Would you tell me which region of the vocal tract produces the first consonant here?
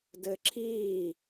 tongue tip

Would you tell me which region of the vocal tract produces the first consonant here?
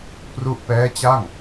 lips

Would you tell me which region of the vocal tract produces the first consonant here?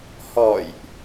throat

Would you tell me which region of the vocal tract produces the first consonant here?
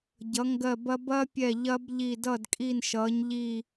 palate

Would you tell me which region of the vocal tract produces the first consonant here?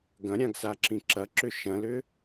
velum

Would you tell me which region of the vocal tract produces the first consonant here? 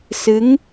tongue tip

